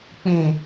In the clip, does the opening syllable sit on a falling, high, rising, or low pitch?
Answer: low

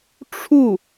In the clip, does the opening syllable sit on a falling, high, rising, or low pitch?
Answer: falling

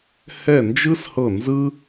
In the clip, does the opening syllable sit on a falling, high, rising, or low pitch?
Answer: falling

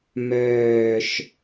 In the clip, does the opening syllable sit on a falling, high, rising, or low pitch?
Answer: falling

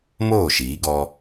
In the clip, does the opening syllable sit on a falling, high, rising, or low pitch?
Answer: falling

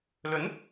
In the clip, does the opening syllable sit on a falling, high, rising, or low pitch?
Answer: rising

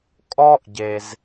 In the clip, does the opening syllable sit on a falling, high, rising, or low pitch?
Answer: high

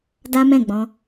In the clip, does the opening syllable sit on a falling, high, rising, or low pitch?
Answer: high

